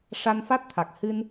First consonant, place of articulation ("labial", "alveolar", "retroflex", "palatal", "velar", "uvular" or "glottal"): retroflex